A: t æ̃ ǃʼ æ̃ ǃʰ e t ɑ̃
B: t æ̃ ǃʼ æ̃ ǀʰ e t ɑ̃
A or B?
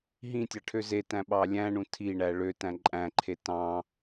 A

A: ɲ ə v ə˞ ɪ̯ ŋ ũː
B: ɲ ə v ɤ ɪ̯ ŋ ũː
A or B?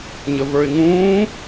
A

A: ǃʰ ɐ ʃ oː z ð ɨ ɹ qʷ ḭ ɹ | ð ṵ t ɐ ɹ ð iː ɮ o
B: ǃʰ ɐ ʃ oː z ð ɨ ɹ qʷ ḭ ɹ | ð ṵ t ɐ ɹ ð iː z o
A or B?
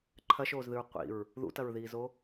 B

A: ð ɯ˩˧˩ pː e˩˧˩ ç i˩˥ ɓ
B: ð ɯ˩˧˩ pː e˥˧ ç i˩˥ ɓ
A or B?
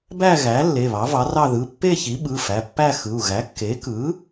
B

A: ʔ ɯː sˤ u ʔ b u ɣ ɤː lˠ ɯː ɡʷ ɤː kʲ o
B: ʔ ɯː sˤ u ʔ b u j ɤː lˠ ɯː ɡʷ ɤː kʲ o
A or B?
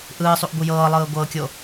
B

